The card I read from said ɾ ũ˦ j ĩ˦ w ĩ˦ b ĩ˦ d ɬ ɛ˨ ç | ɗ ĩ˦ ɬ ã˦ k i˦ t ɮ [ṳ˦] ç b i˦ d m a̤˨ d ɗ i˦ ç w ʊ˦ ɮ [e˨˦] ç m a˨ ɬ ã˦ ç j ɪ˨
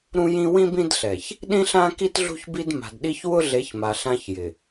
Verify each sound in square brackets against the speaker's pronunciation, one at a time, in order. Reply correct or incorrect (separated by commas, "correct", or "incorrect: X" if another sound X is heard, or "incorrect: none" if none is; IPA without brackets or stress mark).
correct, correct